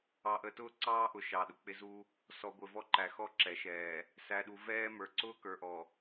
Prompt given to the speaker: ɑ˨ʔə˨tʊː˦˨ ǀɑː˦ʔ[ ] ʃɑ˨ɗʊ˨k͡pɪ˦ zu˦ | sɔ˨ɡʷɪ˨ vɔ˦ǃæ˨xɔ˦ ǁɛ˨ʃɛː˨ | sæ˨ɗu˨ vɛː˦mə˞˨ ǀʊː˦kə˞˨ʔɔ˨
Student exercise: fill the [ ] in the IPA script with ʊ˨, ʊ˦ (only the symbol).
ʊ˨